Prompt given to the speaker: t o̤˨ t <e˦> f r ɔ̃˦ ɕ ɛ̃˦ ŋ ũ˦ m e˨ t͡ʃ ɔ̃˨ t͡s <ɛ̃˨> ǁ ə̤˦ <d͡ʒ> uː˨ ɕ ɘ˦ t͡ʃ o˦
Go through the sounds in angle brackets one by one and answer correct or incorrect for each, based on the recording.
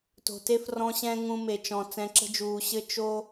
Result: correct, correct, correct

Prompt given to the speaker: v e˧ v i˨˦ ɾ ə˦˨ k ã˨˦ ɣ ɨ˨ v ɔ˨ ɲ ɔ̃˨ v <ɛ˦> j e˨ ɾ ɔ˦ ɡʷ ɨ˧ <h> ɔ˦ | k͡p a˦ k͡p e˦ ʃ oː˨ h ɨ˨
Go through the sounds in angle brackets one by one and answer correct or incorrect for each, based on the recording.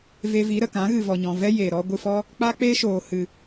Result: correct, incorrect: f

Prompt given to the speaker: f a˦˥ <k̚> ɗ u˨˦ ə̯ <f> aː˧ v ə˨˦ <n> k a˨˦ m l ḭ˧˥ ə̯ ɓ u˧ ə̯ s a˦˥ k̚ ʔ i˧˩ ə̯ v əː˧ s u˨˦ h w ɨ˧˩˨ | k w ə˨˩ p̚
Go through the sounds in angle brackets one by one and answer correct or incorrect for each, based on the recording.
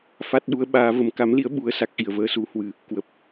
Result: incorrect: t̚, incorrect: ɓ, incorrect: m

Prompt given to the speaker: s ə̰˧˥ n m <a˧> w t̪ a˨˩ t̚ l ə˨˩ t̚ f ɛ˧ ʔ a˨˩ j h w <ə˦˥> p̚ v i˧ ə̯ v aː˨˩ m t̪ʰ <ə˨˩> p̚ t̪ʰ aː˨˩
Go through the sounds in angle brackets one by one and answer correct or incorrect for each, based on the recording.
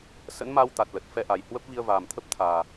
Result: correct, correct, incorrect: ə˦˥

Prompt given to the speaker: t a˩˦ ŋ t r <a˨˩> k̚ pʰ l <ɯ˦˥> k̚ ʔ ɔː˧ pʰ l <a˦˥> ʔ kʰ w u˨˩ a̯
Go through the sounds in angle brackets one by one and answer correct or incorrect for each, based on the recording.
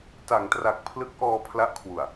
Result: correct, correct, correct

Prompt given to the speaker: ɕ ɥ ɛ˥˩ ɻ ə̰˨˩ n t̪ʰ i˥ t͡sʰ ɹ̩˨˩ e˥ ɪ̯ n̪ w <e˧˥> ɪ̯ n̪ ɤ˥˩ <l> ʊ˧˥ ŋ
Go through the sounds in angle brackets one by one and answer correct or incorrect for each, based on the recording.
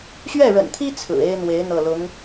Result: correct, correct

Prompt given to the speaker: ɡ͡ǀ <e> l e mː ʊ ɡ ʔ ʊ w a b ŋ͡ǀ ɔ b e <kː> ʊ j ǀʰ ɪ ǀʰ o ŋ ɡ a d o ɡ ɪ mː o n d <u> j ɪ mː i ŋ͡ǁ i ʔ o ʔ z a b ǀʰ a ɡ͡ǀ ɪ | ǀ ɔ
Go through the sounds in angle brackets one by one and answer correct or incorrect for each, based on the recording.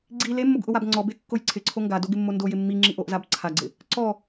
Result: incorrect: i, correct, incorrect: o

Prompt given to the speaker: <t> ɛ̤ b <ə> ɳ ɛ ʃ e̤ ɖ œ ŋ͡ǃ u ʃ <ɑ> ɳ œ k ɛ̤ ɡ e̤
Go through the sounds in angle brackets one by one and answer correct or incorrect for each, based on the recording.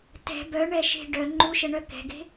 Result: correct, incorrect: œ, incorrect: ə

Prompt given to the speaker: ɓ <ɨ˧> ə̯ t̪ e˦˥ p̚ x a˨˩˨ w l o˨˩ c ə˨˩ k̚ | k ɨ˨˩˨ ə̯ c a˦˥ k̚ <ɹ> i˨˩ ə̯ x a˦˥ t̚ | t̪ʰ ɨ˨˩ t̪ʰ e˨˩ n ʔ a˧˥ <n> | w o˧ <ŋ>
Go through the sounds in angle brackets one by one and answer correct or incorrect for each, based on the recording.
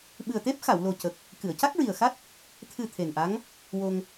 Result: incorrect: ɨ˨˩, correct, incorrect: ŋ, correct

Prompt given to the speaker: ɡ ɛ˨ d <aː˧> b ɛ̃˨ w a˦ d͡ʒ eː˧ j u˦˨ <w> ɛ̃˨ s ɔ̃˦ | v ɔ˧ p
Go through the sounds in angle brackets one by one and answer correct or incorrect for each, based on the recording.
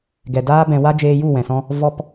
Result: incorrect: aː˦, correct

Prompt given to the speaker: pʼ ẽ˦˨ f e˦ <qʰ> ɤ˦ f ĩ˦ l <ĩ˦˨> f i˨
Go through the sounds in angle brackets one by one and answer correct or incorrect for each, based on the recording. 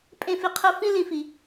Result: correct, incorrect: ĩ˨

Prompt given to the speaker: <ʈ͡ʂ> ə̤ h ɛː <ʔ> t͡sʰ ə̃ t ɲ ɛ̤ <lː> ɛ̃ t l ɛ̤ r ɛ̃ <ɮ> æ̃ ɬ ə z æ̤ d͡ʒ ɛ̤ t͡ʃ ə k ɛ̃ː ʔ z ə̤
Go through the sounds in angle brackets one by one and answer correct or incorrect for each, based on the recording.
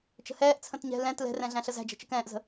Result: incorrect: t͡ʃ, correct, incorrect: l, correct

